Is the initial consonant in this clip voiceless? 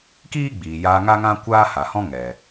yes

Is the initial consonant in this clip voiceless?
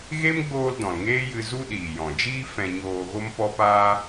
no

